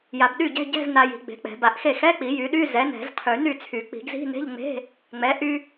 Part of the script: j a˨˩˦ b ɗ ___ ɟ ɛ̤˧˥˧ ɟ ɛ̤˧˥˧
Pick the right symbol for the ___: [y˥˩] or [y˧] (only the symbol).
y˥˩